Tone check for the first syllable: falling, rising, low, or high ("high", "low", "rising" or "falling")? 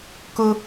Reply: high